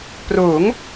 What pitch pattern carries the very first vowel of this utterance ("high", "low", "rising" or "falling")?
rising